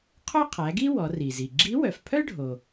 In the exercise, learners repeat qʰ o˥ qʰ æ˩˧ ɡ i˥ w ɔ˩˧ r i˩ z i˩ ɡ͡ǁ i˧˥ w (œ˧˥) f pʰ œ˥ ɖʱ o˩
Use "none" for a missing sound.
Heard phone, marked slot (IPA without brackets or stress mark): œ˩